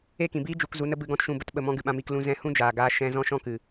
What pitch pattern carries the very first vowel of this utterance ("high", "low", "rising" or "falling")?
falling